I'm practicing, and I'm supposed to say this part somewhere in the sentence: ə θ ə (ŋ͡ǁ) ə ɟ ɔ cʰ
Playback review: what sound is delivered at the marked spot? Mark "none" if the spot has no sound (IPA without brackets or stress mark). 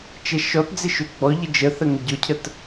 ŋ